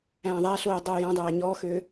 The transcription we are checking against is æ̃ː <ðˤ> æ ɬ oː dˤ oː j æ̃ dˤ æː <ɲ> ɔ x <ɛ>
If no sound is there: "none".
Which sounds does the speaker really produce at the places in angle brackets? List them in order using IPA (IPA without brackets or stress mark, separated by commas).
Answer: ðˤ, ɲ, ø